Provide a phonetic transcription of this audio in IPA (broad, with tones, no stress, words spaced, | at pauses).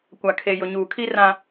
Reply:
kʷa˨kʰe˨ jʊ˨ɲuː˨kʰi˦ rã˦